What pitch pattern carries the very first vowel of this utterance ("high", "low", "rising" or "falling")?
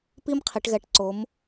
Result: high